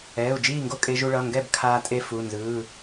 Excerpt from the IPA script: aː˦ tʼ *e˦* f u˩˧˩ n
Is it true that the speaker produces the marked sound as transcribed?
yes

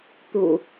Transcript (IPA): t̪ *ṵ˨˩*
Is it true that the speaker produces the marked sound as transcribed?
yes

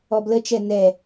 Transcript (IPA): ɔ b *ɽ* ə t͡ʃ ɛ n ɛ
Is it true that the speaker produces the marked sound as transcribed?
no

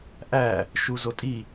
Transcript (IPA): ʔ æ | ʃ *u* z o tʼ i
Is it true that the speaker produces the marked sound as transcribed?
yes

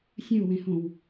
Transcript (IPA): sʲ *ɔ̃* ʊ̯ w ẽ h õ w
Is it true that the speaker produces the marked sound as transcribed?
no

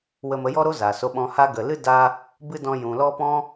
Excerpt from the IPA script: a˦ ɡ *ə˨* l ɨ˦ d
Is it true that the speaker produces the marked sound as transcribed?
yes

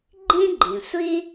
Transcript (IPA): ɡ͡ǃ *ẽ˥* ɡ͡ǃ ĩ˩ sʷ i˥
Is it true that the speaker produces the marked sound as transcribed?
no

